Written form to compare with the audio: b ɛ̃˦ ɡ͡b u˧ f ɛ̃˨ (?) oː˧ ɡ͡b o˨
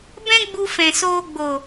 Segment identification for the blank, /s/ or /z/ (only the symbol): s